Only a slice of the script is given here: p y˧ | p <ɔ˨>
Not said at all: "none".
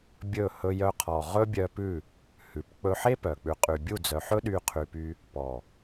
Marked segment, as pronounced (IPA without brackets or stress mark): ɔ˨